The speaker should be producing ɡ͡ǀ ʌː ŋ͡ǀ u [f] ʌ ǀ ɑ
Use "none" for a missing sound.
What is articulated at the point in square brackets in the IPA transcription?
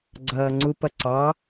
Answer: p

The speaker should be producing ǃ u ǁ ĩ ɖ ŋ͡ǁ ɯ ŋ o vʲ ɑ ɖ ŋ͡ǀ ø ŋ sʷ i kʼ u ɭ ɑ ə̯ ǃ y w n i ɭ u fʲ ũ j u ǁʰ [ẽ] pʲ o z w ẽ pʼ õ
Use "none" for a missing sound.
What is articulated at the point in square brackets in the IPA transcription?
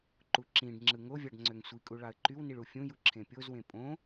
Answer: ẽ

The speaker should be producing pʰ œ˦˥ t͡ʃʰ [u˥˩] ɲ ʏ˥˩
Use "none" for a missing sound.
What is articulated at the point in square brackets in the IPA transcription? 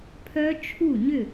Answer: u˥˩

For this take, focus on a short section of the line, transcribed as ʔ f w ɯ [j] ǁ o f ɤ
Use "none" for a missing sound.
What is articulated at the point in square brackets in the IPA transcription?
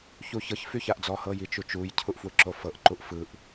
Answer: none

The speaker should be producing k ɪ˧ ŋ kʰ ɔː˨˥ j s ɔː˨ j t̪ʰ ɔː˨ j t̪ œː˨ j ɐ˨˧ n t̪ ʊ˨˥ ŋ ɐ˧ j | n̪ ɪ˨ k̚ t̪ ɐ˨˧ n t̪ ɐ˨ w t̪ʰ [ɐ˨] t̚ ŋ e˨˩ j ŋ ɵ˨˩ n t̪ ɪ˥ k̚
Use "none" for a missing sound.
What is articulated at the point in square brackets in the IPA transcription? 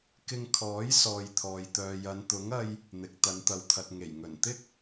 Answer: ɐ˨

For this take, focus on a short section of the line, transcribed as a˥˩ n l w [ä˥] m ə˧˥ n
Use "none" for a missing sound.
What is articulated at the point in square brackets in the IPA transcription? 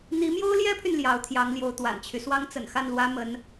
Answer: ä˥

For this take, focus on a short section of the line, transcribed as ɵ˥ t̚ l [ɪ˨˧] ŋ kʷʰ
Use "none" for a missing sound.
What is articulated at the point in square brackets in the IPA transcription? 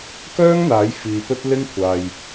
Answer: ɪ˥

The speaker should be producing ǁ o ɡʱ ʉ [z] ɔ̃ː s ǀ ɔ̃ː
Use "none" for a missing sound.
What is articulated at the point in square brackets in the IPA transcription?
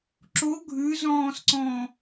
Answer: z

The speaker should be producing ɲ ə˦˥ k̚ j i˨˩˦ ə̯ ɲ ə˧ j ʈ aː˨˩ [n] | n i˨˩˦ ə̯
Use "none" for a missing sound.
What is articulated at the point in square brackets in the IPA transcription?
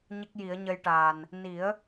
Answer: n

